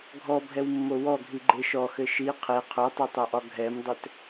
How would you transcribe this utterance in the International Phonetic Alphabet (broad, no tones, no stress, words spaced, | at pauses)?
ɡʱɔbʱɛwmːo wɔɡʱiɡ͡ǃe ʃɔxɘ ʃi qʰe qʰotˤetˤoʔɒ ɡʱɛmdˤɘt